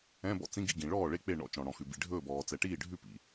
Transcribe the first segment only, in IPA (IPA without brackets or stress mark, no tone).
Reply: ɛ̃